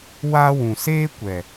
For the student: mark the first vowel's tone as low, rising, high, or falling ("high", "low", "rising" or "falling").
high